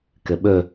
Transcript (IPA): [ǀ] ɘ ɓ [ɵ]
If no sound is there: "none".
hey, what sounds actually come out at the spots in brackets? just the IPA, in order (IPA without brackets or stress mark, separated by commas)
k, ɵ